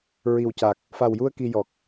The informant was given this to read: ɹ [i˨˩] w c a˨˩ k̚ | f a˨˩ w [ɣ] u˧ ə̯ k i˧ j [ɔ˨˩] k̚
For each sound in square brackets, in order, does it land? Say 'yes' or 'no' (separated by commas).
yes, no, yes